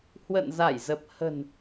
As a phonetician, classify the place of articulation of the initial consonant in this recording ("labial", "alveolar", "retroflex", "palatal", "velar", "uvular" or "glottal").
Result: glottal